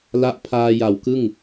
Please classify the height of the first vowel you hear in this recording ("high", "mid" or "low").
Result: low